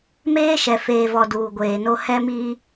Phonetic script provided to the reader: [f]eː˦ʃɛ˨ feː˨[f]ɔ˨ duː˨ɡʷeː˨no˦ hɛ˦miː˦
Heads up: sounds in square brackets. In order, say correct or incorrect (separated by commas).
incorrect, incorrect